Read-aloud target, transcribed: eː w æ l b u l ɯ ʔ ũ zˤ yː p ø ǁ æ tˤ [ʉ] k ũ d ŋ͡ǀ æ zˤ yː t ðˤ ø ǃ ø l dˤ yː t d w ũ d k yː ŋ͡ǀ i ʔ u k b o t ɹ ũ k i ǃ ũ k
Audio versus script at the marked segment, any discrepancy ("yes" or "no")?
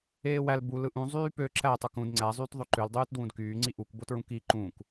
yes